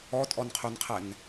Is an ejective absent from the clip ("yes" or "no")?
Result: no